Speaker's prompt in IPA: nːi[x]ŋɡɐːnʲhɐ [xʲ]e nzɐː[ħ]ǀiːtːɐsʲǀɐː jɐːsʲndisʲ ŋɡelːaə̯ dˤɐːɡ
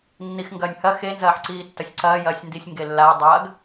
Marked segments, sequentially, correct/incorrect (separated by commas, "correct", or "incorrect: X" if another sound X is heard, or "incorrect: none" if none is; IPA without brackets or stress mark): correct, incorrect: x, correct